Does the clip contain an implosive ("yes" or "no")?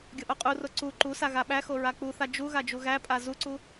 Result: yes